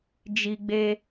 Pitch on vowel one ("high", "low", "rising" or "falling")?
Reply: high